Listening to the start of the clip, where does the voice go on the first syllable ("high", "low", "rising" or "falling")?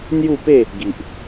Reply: falling